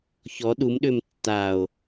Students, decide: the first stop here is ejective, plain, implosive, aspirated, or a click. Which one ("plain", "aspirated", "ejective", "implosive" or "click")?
implosive